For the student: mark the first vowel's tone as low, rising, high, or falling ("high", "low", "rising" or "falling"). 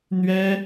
high